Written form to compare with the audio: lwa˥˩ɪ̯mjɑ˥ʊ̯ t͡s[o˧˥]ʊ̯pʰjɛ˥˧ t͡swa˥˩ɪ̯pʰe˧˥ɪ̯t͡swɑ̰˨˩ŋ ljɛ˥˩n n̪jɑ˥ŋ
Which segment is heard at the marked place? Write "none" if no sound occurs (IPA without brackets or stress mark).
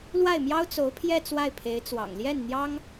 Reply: o˧˥